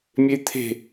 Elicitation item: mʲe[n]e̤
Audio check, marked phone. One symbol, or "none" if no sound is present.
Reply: t̪ʰ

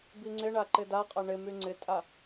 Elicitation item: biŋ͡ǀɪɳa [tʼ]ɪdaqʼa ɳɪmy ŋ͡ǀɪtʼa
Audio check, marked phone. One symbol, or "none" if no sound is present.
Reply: ǃ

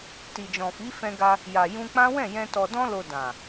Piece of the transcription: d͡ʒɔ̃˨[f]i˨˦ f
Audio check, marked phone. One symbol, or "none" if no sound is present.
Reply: f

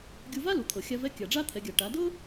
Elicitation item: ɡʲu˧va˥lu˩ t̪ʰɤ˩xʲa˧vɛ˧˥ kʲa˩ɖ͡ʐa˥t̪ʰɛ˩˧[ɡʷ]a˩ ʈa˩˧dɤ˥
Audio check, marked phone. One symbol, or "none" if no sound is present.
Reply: ɡʲ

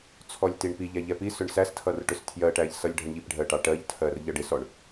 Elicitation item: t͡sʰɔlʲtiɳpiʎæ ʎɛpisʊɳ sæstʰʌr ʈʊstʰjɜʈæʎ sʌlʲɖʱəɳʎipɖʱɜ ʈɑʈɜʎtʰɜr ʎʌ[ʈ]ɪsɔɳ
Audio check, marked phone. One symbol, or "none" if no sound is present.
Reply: ɖ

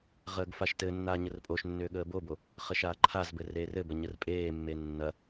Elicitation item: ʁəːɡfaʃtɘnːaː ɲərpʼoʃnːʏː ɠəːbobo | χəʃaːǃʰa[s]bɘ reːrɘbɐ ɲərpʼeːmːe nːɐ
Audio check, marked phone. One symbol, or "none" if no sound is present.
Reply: z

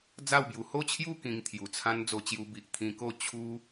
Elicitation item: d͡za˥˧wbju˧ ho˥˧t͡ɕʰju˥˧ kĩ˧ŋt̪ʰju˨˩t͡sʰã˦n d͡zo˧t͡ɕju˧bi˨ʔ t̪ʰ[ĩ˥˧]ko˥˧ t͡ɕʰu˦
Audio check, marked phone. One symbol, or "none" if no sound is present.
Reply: ĩ˧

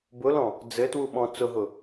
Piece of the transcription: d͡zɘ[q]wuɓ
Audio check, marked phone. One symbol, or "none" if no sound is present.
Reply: t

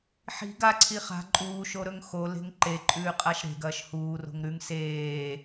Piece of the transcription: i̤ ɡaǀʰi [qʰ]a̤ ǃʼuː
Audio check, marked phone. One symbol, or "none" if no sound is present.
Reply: χ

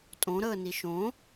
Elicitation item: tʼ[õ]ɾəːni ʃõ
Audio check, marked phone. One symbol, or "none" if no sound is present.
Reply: õ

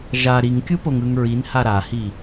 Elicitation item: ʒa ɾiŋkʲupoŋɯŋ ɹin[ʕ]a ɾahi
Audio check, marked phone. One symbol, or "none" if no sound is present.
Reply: h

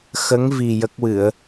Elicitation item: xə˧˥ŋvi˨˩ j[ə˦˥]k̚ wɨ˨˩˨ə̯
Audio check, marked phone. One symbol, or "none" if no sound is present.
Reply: ə˦˥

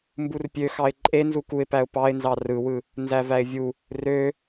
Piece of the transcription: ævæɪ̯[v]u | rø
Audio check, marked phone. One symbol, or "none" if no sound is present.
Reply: vʲ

